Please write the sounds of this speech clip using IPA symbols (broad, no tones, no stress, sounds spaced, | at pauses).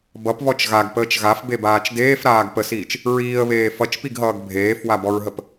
b ʌ p β ɔ t͡ʃ ɣ a ɡ p əː t͡ʃ ɣ a f b e b aː t͡ʃ d eː f ɾ aː ɡ p ə s iː t͡ʃ | ɹ iː ə̯ β eː f ʌ t͡ʃ p i ɡ ɦ ʌː ɡ bʱ eː f w a b ɔ ɹ ɦ ə p